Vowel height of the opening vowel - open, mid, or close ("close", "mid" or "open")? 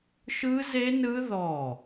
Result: close